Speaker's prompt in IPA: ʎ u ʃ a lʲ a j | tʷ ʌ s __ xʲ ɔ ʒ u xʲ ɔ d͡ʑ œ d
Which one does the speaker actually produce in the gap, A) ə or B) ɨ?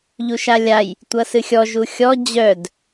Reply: B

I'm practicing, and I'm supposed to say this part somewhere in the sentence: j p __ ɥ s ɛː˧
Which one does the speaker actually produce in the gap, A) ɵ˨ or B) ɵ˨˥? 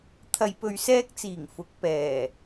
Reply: A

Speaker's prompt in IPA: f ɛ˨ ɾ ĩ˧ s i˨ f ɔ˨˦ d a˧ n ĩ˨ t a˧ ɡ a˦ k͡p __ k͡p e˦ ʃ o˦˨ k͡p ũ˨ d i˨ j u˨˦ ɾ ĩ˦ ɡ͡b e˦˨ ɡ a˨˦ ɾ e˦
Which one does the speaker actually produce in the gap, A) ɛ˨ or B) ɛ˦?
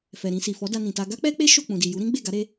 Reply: B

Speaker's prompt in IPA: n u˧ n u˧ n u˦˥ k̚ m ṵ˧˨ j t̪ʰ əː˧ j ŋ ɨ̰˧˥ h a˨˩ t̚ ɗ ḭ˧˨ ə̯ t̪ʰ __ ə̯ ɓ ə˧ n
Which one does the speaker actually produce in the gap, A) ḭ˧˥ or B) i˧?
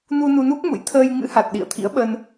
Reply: A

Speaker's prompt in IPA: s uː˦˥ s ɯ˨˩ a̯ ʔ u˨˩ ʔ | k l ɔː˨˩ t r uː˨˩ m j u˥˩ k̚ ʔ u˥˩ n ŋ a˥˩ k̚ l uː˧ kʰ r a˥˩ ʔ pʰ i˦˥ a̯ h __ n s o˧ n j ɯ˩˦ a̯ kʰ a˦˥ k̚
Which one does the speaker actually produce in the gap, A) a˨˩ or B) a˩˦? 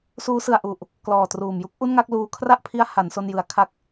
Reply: B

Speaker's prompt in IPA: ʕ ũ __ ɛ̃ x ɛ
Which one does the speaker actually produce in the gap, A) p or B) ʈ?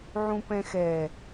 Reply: A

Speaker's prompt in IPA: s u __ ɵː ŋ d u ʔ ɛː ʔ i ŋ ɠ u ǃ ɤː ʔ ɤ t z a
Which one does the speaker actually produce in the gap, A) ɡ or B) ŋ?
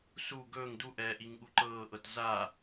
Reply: A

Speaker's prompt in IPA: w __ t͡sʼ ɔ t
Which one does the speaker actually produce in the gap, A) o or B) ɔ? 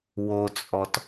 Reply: A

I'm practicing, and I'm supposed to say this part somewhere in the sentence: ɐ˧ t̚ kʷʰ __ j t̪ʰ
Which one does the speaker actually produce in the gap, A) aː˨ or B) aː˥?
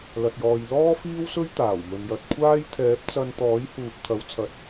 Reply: B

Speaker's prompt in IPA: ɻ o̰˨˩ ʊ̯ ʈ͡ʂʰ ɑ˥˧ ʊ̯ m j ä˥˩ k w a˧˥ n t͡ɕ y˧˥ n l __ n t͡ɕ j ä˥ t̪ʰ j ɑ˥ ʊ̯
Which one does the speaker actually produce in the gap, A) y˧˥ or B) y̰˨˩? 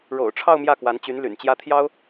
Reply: B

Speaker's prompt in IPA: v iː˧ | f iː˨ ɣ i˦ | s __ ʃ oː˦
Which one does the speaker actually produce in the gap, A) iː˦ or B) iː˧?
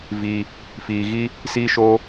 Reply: A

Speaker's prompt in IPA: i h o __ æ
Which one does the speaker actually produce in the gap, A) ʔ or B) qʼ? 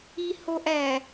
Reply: A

